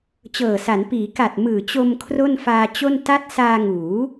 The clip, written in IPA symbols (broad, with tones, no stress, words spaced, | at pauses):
t͡ɕɤː˨˩sa˩˦n piː˩˦ ka˨˩t̚ mɯː˨˩t͡ɕo˧m kʰro˥˩nfaː˧t͡ɕo˥˩n ta˦˥t̚ saː˧ŋuː˩˦